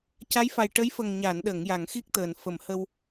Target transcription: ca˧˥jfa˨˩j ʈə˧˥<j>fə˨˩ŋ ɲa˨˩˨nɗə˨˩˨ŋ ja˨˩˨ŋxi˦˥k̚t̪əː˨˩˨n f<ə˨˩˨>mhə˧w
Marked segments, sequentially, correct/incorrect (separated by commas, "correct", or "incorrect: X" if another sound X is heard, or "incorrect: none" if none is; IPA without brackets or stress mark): correct, correct